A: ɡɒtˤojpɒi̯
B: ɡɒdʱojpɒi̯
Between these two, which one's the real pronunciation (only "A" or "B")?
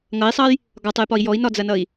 A